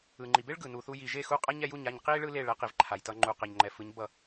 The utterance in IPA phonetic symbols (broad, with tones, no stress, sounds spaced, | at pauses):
ɯ˩ ŋ͡ǃ i˩ b e˥ ɭ ɡ ɯ˩ n u˩ θ u˧ j i˩ ʒ e˥˩ x u˥˩ qʼ a˥ ɲ ɛ˧ j u˥˩ ɲ a˥˩ ɲ q i˥ ɭ ɯ˥ l e˥˩ ɭ ɛ˩˥ q i˩ v ǃʰ a˩ j t ʌ˧ ŋ͡ǃ u˩ q ɛ˩ ɲ ŋ͡ǃ ɛ˩ f ɯ˩˥ ɲ b ʌ˥˩